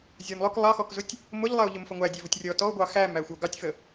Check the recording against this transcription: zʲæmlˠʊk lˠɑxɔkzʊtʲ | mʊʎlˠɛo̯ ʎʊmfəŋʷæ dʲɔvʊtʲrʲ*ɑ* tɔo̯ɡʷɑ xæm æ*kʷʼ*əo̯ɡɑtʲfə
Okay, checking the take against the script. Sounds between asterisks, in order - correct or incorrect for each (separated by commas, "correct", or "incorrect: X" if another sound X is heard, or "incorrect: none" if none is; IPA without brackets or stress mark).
incorrect: ɔ, incorrect: xʷ